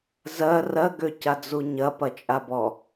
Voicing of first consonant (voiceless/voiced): voiced